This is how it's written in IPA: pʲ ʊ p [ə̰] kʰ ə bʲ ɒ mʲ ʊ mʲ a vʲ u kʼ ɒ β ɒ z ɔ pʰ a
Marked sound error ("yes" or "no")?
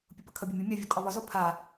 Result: yes